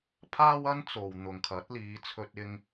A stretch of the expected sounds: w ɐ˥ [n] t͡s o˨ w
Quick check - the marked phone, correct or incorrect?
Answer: correct